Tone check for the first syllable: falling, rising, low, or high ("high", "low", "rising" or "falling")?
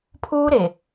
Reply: high